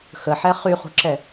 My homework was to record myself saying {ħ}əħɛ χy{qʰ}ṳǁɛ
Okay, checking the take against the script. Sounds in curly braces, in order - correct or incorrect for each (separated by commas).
incorrect, incorrect